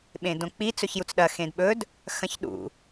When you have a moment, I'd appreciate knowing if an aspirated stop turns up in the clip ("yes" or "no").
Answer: no